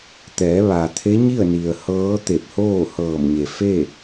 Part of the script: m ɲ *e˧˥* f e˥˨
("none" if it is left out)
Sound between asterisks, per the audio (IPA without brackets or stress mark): e˩